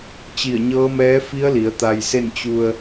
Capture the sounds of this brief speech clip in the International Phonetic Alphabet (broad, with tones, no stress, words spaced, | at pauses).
t͡ɕi˧˩ə̯ɲɤː˧˥mɛː˧˥fi˧˥ə̯ li˩˧ə̯t̪a˧jse˥˨n t͡ɕu˧ə̯